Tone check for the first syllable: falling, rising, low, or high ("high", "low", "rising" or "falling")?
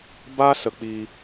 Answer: high